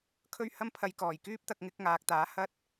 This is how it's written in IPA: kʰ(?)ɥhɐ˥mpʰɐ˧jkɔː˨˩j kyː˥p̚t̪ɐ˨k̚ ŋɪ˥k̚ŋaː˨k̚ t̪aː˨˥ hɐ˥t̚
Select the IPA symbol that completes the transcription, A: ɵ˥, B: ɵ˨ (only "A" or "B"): A